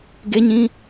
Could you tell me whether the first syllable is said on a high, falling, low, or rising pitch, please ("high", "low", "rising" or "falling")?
high